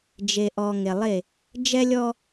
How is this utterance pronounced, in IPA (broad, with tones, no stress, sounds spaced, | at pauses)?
d͡ʒ e˨ ʔ ɔ˨ ŋ e˨ lˠ e˦˨ | d͡ʒ ɛ˦ lʲ ɔ˦